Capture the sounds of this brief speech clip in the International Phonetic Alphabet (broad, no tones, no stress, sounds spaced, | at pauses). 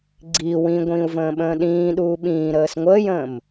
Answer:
ɡ͡ǀ i w ĩ ɡʷ ĩː u̯ v ə̃ː ɓ ə̃ː ɗ ĩː ɗ uː ɓ ĩː ɾ əː s ŋʷ əː j ə̃ː m